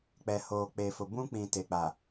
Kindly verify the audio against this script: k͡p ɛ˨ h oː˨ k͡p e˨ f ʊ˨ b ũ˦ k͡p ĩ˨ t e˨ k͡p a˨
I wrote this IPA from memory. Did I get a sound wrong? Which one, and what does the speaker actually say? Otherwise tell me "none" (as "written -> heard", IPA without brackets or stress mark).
none